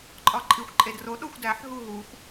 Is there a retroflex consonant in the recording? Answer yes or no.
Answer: no